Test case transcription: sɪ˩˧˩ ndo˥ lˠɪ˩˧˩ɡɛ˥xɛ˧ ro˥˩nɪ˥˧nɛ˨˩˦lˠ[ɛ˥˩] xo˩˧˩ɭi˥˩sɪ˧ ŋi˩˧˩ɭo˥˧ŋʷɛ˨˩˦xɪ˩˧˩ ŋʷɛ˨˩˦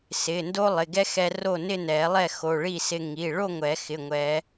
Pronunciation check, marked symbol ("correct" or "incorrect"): correct